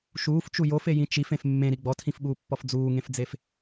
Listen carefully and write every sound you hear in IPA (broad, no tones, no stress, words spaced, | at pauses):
ʃuːft͡ʃu jofejĩ t͡ʃifẽf mːẽɾi ɡ͡bɔtʰĩfɓuːpːɔf d͡zuːŋẽfd͡zef